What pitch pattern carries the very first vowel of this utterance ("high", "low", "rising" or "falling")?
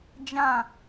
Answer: falling